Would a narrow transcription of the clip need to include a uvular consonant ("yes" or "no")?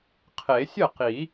yes